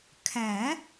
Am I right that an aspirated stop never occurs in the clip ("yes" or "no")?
no